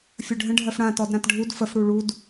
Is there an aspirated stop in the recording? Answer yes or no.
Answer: no